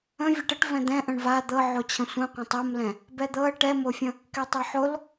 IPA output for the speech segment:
ə̃ vʲ ɛ ʈ ə ʈ v ɛ̃ d̪ ɛ̃ ʔ ə̃ ɳ v a d̪ ɤ ʕ o t͡ɕʰ ə̃ sʷ ə̃ qʷ ɛ̃ tˤ ɤ m l ɛ̃ | b ɛ d̪ ɤ ə̯ ʈ ɛ m o fʲ ə̃ | k ɛ tˤ ɛ ħ o l

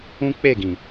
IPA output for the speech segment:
ũ˦ k͡p e˦˨ ɡ ĩ˨

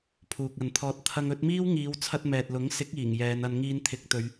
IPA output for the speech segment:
pʰ uː˨ k̚ ɐ˨ n t̪ʰ ɔː˧ t̚ t̪ʰ ɐ˧ ŋ ɵ˨˥ t̚ m iː˥ w ŋ iː˨˧ w t͡sʰ ɐ˧ t̚ m ɛː˨ t̚ l ʊ˨˥ ŋ s ɪ˨˥ k̚ iː˨˩ ŋ j ɛː˨˧ n ɐ˧ n ŋ iː˧ n t̪ʰ ɪ˨˥ k̚ t̪ ɵ˨˧ ɥ

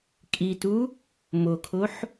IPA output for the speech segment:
kʼ i t u | m o kʰ o ħ

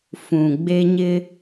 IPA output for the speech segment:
f ũ˨ ɡ͡b e˦ ɲ ɪ˦

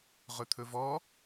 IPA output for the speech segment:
ʁ ɵ t̪ʰ ɵ v ɔ

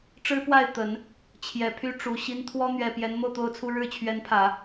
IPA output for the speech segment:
ʈ͡ʂ ɻ̩˥ p w a˥˩ ɪ̯ t̪ ə˨˩˦ n | t͡ɕʰ j ɛ˨˩ pʰ y˥ ʈ͡ʂ u˨˩ ɕ i˥ n t̪ʰ w ɔ˥ n̪ ɥ ɛ˨˩ p j ɛ˧˥ n m o˥˧ ʊ̯ t̪ o˥˧ ʊ̯ t͡sʰ u˥˧ ɻ ɻ̩˥˩ t͡ɕʰ ɥ ɛ˧˥ n pʰ ä˨˩˦

